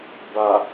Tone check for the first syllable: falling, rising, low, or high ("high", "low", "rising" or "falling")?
low